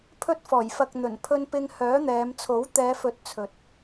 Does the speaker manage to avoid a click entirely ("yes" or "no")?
yes